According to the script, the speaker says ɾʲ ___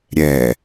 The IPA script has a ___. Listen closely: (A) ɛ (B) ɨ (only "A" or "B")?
A